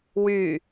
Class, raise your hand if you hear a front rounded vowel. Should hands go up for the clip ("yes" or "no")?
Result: yes